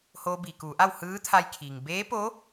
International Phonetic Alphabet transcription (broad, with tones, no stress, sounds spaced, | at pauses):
h oː˧ b iː˩ k uː˩˧ ʔ a˥˨ w h ɯː˧˥ t̪ʰ a˧ j kʰ iː˩ ŋ b eː˧˥ p o˧˥